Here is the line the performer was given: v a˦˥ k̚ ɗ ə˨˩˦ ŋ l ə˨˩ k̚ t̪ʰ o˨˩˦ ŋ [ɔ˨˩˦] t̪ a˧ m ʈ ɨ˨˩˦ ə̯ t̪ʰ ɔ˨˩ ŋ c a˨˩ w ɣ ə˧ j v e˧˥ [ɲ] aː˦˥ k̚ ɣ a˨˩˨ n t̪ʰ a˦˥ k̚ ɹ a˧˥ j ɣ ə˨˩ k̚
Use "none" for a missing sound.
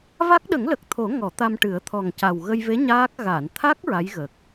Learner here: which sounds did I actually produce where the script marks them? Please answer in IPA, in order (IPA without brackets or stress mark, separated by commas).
ɔ˨˩˦, ɲ